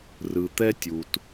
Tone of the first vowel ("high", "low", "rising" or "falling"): low